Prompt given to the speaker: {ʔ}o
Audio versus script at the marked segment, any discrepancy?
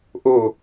no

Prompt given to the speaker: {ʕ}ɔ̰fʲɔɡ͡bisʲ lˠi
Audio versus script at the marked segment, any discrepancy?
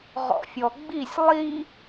yes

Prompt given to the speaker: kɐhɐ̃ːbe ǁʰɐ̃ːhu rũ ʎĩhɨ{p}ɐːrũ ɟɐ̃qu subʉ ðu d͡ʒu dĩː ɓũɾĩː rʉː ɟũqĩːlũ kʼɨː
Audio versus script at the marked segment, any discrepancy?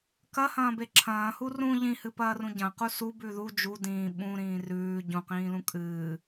no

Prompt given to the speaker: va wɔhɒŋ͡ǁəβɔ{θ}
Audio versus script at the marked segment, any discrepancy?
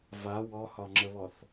no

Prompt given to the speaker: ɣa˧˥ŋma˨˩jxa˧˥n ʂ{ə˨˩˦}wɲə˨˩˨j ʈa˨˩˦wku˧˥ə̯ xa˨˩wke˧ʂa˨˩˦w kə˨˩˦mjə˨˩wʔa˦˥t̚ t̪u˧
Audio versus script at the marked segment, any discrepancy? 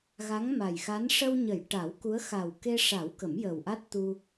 yes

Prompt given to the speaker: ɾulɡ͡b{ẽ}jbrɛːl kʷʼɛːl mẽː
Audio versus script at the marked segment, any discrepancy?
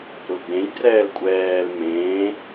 no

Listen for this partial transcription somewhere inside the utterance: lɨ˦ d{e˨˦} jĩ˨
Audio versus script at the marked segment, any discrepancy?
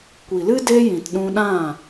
yes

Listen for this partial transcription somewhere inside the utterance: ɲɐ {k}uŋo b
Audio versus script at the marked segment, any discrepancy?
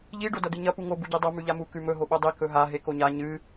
yes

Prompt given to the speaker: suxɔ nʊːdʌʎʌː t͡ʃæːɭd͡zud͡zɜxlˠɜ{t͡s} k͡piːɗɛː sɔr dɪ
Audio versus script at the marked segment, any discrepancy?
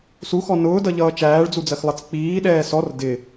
no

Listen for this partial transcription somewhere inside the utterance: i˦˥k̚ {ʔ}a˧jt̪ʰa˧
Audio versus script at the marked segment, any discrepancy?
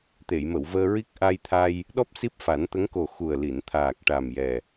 no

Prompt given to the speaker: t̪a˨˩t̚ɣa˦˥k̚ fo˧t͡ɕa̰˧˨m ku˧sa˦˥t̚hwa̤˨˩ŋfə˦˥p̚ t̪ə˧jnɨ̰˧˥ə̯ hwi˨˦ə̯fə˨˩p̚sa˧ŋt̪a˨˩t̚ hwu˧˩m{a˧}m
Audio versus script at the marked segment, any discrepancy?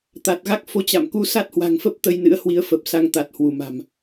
yes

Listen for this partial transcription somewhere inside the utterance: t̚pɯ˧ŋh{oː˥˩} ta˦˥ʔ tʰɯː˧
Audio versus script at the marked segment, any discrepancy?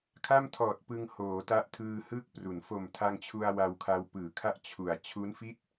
yes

